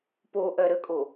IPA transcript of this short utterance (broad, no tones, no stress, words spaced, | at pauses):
poʔɜ ɾəkʼo